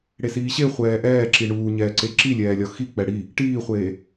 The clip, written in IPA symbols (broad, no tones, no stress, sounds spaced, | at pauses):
ɽ e s iː ɕ e χʷ ɛː ʔ ɛː ǁ i ɳ uː ɲ ɛː ǀ e ǁ i lʲ ɛː lʲ ɒ x i k͡p ɛ ɽ i | ʈ iː χʷ eː